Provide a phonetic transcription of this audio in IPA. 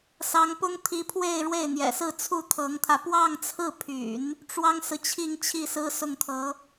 s ɑ˧˥ ŋ p ʊ˥ ŋ t̪ʰ i˧˥ pʰ w e˥˧ ɪ̯ ɻ w e˥˩ ɪ̯ n̪ j ɛ̰˨˩ s ɹ̩˥˧ t͡sʰ u˥˩ t̪ʰ ɤ˧˥ ŋ t̪ʰ ä˧ p w ɑ˥˧ ŋ t͡sʰ ɹ̩˥˩ pʰ y̰˨˩˦ n | ʈ͡ʂ w ɑ˥ ŋ s ɹ̩˨ t͡ɕʰ i˥˧ ŋ t͡ɕʰ i˥˩ s ɹ̩˥ s ʊ˥˩ ŋ t̪ʰ ɤ˧˥

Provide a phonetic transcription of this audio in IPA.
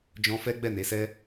d͡ʒ ɔ̃˧ f ɛ˦ ɡ͡b ɛ˦˨ n e˨˦ s ɛ˦

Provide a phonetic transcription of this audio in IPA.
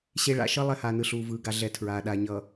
ɕ e˦ ɭ a̰˦˨ ʃ ʌ˦ lˠ ɛ˦ h aː˨ n ɯ˨ ɬ uː˨ v ɯː˨ ɡ a˨ ɮ ɛ˨˦ tʰ ɹ aː˨ ɗ a˨ ɲ ʌ˨

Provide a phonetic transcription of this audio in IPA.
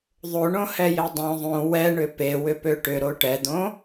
ðˤ o ɳ õ h ɛ j e dˤ õ ðˤ õ w ɛ ɳ ʏ p e w ʏ p ø ʈ ʏ ɾ o ʈ ɛ d̪ õ

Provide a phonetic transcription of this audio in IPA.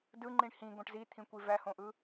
d ɯ ŋ͡ǃ ĩ ɳ h ĩ ɡ õ ʈ z i t̪ʰ ĩ kʷ i v æ h õ ʔ ɯ

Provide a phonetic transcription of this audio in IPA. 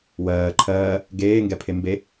w ɜː ǃʰ ɜː | ɡ eː ŋ ɡ ɛ pʰ e m b e

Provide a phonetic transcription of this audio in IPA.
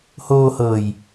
h oː˧ h ɤː˨˩ j

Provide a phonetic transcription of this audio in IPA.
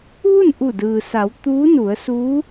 ʋ u˥˨ n ʔ u˧˩ d ɯː˩ s a˩˧ w t̪ uː˧˥ n u˩˧ ə̯ s uː˧˥

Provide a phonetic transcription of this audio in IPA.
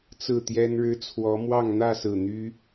t͡s ɹ̩˥˨ t̪ j ɛ˦ n ɻ ɻ̩˦ t͡sʰ w ɔ˨˦ m w ɑ˥˨ ŋ n̪ ä˥˨ s ɹ̩˨˩ n̪ y˦

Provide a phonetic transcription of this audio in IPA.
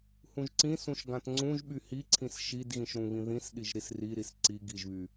h ũ ʒ ǀ ĩ s ũ ʃ ɡ ã t ŋ͡ǀ ũ ʒ ɓ y h i ǀʰ ĩ s ʃ i d ɣ ĩ ʃ ɾ ũ β ĩ ð ĩ s ɗ i ʒ ɾ i s r i ɾ i s ǀ i ɡ i ʒ β y

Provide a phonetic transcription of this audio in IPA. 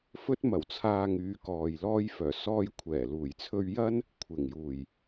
f ɵ˧ t̚ m ɐ˨˩ w t͡sʰ aː˨ ŋ yː˨˧ k ɔː˨ j l ɔː˧ j f œː˨˩ s ɔː˧ j kʷʰ ɛː˨˩ l uː˨˩ j t͡sʰ ɵ˧ ɥ j ɐ˥ n | kʷʰ ɪ˨˩ ŋ j uː˨˩ j

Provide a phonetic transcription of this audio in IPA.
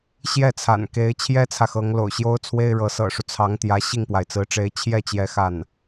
ɕ j ɛ˥˩ t͡sʰ a̰˨˩ n k e˧˥ ɪ̯ t͡ɕʰ j ɛ˥ t͡sʰ ä˨ x ɤ˧˥ ŋ l o̰˨˩ ʊ̯ ɕ j o˥ ʊ̯ t͡sʰ w e˥ ɪ̯ ɻ ɤ˧˥ s ɤ̰˨˩ ʂ u˦ t͡sʰ ɑ˧˥ ŋ t̪ j ä˧˥ ɕ i˥˩ ŋ p w a˩ ɪ̯ t͡s ɹ̩˧˥ ʈ͡ʂ e˧˥ ɪ̯ t͡ɕʰ j ɛ˥˩ t͡ɕ j ɛ˧˥ x a˥˩ n

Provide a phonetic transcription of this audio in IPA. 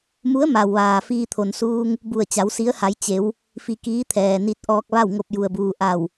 m u˧˥ ə̯ m a˩ w ʋ aː˩ f iː˧ t̪ʰ o˩ n s uː˧ ŋ | b u˧˩ ə̯ t͡ɕ a˩˧ w s i˧˥ ə̯ h a˩˧ j t͡ɕ e˩˧ w | f i˧ k iː˧˥ t̪ʰ ɛː˩ n i˧ t̚ ʔ ɔː˧ k̚ ʋ a˥˨ w ŋ o˧ p̚ j u˩ ə̯ b uː˩ ʔ a˧˩ w

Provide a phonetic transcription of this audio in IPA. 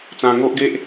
t͡s ã˧ ŋ o˦ ʔ ɡ e˦ ʔ

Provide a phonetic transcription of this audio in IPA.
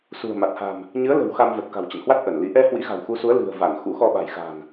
s ṳ˨˩ ə̯ m a˨˩ t̚ h a̤˨˩ m | ɲ ɨ˨˦ ə̯ l ə̤˨˩ w x a˧ m v ə˨˩ t̚ k a̤˨˩ w t͡ɕ ə̰˧˨ n h w a˦˥ t̚ ʔ ə˧˩ n l i˨˦ ʔ ɛ˧ h w ḭ˧˥ ɣ a̤˨˩ w x u˨˦ s u˨˦ ə̯ l ɨ̤˨˩ ə̯ v a˧˩ n x ṵ˧˥ x ɔ˧ ɓ a̤˨˩ j x a̤˨˩ n

